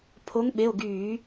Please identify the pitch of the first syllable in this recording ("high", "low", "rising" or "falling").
rising